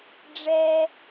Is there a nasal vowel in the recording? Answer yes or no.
no